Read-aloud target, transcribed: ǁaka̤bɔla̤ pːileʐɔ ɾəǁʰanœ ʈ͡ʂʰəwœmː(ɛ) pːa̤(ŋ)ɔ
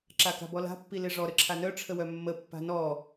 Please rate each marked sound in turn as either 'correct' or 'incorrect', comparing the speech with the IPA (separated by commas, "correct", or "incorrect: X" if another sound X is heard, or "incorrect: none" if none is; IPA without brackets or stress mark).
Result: incorrect: ə, incorrect: n